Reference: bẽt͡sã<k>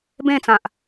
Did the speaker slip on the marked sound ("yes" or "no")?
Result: yes